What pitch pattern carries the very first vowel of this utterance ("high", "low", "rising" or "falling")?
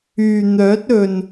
low